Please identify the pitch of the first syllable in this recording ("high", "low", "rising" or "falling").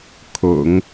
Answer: low